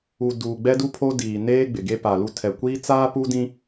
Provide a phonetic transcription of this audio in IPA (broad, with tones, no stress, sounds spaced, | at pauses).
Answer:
u˨ d uː˨ ɡ͡b ɛ˦ d u˦ pʰ o˦ d iː˨ n eː˦ ɡ͡b ɪ˨ ɡ e˦ p a˨ l u˦ tʰ ɛ˨ kʷ iː˦ t͡s aː˦ p u˦ d ĩ˦